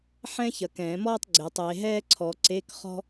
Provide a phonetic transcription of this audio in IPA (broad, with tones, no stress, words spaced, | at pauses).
ħɛ̃˥çɐ˨ kɛ̃ː˨˩˦mɔː˥tˤ ɡ͡ǀe˨˦tˤe˨˦ ɦɛː˥ǀʰɔ˨ǀe˧˥˧k χɔ̤˥